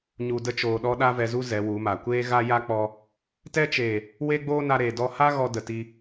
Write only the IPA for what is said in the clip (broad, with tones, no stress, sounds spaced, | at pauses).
ɲ u˨ d ə˧ t͡ʃ oː˨ ɗ ɔ˦ ɗ a˦ v ɛ˧ z u˦ z ɛ˨˦ w u˨˦ m a˨ kʷ eː˦ ɣ a˦ j a˦ k͡p ɔ˧ | t ɛ˦ t͡ʃ eː˨ | w e˦ ɡ͡b oː˦ n a˧ ɾ eː˨ d ɔ˧ h a˦ ɣ ɔ˦ d ə˨ t i˧